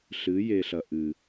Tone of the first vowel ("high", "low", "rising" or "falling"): rising